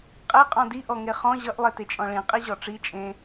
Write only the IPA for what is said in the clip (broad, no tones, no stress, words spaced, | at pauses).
qʼeqʼɔ̃ diʔɔŋe χɔ̃ ʑʌʔlˠetet͡ʃʼɔ̃ ɭĩ qʼiʑɔʈ͡ʂi t͡ʃʼẽ